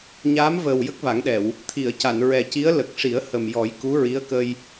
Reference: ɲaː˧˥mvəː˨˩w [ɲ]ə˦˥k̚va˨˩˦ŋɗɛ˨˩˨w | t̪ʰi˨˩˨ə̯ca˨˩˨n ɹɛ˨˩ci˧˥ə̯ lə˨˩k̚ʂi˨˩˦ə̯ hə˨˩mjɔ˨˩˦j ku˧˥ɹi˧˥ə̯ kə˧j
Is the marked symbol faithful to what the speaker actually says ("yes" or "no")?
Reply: no